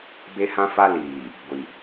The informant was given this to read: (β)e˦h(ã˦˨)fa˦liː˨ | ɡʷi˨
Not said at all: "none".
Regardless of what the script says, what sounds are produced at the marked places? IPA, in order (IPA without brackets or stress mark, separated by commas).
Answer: b, ã˦